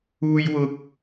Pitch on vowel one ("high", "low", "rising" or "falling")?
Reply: high